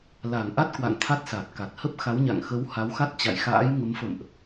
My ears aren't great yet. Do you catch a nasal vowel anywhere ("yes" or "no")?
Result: no